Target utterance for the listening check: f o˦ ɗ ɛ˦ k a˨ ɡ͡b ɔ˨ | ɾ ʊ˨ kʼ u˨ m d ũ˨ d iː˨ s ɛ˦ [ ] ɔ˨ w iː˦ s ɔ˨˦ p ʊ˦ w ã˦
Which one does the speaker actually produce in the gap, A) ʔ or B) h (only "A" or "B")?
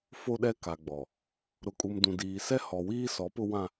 B